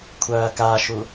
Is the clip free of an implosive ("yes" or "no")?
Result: yes